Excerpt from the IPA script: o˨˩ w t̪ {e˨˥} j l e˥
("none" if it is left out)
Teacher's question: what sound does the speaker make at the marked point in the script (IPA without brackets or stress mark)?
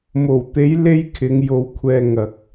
e˨˥